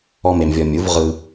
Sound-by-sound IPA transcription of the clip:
ɔ˥ m e˧ m vʲ ɔ˧ mʲ u˩˥ v ʁ ɯ˧

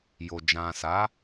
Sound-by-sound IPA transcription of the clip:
j o˨ d͡ʒ ã˨ s a˨˦

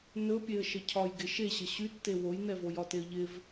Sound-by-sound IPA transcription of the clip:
n ɵ pʲ e ə̯ ʃ ə cʰ ɒ j ɡ ɪ ʃ e ɕ ə ɕ y tː e w o j n ɛ v o j ɒ t e ə̯ ʎ ɪ v

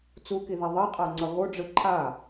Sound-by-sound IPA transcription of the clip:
t͡s u k i ð a ðˤ i qʼ a ŋ͡ǀ ʌ ɣ o ɖ͡ʐ ɯ ǃʰ a

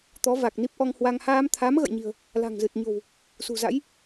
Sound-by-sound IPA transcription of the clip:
t̪ ɔ˨˦ v a˨˩ k̚ n i˦˥ p̚ ʔ ɔ˧ ŋ h w a˧ ŋ h aː˧ m t̪ʰ a˨˦ m ɣ ə̰˧˨ j ɲ i̤˨˩ ə̯ | l a̤˨˩ ŋ z ɨ˨˩ t̚ ɲ o̤˨˩ w | s ṳ˨˩ z a̰˧˥ j

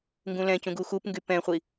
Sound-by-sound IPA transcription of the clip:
ŋ ɡ ũ l ɛ̃ c ũ ɡ u x u p ŋ ɡ y p ɛ̃ χʷ i

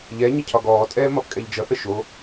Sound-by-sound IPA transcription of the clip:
ʎ ɛ ɲ ə cʰ ɒ ɡ ɔː tʼ ɛː m ɒ p kʼ ɛ ʎ d͡ʒ ʌ θ ə ʃ o

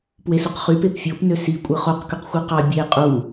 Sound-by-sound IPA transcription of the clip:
p w e s u q χ y p e p fʲ o p n ø s i kʷʼ ɯ χ o q k y q xʷ ɯ q ɑ bʲ e qʼ u

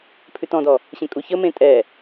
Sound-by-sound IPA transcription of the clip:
pʰ ʉ t ɔ̃ d ɔ | ɕ ẽ kʼ u ç ə m ẽ tʼ ɛ

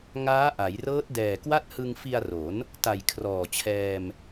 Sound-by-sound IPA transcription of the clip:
ŋ aː˦˥ ʔ a˩˦ j r ɤː˦˥ t̚ d ɛː˨˩ k w a˥˩ t̚ h ɯ˧ ŋ f i˧ a̯ r o˩˦ n | t a˨˩ j kʰ r ɔː˨˩ t͡ɕʰ ɛː˧ m

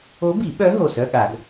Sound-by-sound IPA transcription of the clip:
o˧˥ b i˨˩˦ ɓ œ˧˥ ɦ o˧˩ s œ˧˥˧ ɠ a˨˩˦ ɡ

